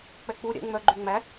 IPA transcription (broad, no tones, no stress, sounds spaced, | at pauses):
k͡p ɛ k͡p u ɾʲ ɛ̰ ŋ͡m œ ɡ͡ǃ y ŋ͡m æ